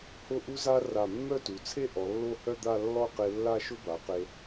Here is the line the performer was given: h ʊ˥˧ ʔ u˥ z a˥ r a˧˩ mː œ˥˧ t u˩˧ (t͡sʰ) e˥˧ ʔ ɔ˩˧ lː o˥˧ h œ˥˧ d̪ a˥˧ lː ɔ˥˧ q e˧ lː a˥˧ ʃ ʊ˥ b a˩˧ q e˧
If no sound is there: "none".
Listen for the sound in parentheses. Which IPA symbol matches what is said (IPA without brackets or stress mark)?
t͡sʰ